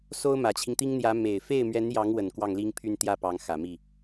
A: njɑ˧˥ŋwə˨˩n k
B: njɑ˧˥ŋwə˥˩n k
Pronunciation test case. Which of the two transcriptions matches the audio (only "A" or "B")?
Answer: A